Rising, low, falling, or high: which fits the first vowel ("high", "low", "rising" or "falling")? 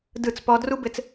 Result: falling